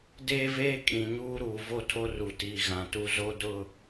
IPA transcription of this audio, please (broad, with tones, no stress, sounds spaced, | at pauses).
d eː˦ v eː˦ kʼ ĩ˨ ɲ uː˦ ɾ uː˨ v o˦ tʰ o˦ r u˨ t iː˨ ɣ ã˨ t u˦ z o˦ d ʊ˦˨